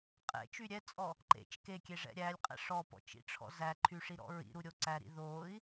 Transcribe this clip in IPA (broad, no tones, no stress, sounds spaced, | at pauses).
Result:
qʼ ɛ̰ t͡ʃ y ɾʲ ɛ t͡sʼ ɔ | ǃ ḛ t͡ʃ k e kʲ e ʐ ɛ̰ ɾʲ æ lʲ qʼ ɛ̰ ʂ ɔ p ɔ̰ t͡ʃ ḭ ʈ͡ʂʰ ɔ̰ z æ ǃʰ y ʂ i ɾ ɔ̰ ɹ ḭ ɾ u ɾʲ o ǀ æ ɾ ḭ ð o i̯